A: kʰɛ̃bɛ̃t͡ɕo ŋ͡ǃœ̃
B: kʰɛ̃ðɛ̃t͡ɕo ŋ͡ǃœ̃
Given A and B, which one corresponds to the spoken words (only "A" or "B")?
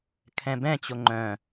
A